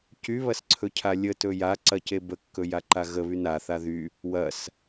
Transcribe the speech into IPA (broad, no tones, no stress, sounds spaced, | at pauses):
c y β ɐ s ǀʰ ɵ cʰ a lʲ ə t ɵ j a ǀ ɐ c e b ə kː ɵ j a ǃ a ɣ ə β y n a θ a ð y | w ɐ s